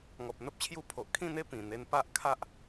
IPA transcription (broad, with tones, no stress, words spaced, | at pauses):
ŋɔ˨p̚n̪ə˦p̚t͡ɕʰju˧pʰo˨ʔ kʰĩ˥˧n̪e˥˧ pĩ˨˩ n̪e˧npa˦ʔ kʰa˦ʔ